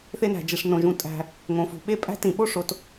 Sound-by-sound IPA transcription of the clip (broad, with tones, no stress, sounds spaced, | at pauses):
θ e˥ n æ̤˩ d͡ʒ i˩ ʂ n õ˩ ʒ ũ˩ tʼ æ̤˩ | ŋ õ˩ f ṳ˩ ɓ e˥ pʼ æ̤˥ t ĩ˩ ɓ o˥ ʂ o˩ t